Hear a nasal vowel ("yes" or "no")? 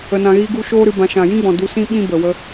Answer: yes